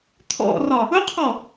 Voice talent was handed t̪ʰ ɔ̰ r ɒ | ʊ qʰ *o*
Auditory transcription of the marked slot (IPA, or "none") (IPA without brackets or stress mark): ɔ